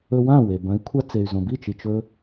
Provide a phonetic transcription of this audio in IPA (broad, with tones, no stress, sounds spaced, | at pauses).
ɵ˧ w ã˥˩ w e˩ b ɐ̃˩˥ i̯ kʷʰ a˧ t͡s e˩ y̯ z õ˩ b i˥˩ t͡ʃ i˩ t͡ʃ ɵ˧